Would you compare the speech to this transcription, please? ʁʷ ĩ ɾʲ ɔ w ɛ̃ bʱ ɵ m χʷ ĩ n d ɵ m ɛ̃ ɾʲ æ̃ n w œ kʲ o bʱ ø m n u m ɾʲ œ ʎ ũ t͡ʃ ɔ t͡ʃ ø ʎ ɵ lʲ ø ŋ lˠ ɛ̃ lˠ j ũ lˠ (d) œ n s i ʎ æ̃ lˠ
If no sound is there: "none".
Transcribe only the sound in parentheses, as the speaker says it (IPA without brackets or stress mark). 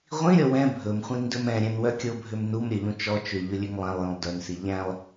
d